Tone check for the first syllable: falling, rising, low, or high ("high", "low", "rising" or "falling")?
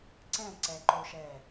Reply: falling